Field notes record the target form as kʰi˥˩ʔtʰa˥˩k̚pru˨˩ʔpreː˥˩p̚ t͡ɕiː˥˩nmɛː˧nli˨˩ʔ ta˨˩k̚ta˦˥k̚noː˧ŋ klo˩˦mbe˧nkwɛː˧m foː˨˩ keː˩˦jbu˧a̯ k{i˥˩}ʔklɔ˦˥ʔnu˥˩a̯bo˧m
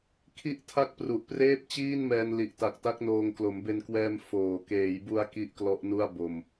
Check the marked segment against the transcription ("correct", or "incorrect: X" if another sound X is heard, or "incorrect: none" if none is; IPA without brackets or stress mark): correct